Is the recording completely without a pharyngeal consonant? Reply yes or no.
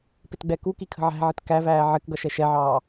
no